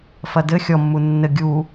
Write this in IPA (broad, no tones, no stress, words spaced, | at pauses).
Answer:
fɐdɘ xʲɔmːu nːɘ ɡʲu